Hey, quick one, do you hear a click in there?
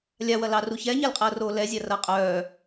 no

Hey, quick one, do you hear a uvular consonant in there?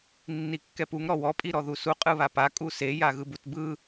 yes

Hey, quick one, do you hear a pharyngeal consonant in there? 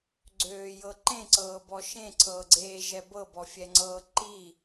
no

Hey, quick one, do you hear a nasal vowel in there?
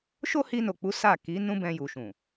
yes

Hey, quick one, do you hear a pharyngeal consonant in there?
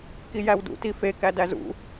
no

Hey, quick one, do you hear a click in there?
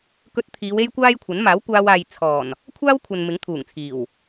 no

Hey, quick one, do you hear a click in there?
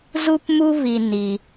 no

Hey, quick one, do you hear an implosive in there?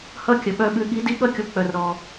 yes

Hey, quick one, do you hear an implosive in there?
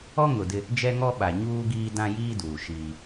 yes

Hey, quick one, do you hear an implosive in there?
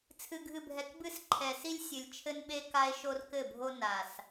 yes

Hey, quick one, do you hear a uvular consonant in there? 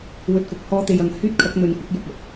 no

